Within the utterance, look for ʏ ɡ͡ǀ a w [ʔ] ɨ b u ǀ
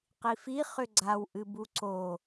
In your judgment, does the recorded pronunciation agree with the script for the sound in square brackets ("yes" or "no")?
yes